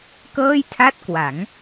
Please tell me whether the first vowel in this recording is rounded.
no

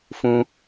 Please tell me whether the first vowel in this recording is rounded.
yes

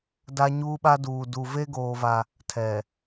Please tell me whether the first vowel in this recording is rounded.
no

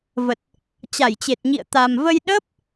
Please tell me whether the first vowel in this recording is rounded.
no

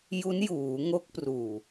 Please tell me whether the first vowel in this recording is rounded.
yes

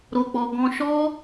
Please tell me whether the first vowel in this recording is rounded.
yes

